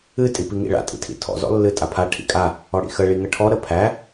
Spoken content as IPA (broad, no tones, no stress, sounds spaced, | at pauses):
ɨ tʼ i p i ŋ ḭ ɭ a̰ tʼ ḭ tʰ ḭ tʰ ɔ̰ z ɔ̰ lː ɨ tʼ a pʰ a ʈʰ ḭ kʼ a | ɔ ɽ ḭ x ə ɭ i ŋ ə ʈʰ ɔ ɾ ə pʰ æ